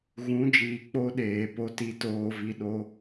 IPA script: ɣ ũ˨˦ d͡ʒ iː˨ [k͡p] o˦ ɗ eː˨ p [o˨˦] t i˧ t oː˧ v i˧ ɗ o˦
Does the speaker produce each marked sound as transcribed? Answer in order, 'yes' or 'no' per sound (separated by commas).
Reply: yes, no